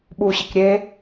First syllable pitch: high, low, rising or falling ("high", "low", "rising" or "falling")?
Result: low